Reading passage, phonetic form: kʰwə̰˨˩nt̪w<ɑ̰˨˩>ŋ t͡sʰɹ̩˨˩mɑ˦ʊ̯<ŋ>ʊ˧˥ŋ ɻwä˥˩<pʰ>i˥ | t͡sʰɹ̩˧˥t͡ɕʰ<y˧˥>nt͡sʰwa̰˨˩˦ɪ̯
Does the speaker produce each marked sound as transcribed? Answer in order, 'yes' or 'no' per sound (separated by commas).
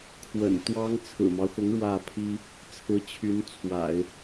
no, no, yes, yes